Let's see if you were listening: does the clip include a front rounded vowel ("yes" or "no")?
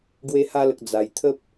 no